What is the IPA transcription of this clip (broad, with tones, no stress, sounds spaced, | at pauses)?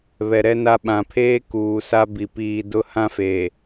β ɛ˨ ɾ ɛ˦ n a˦ ɓ ã˨ pʰ eː˦ k uː˨ s a˦ b i˨ p iː˨ d ʊ˦ h ã˦ f eː˨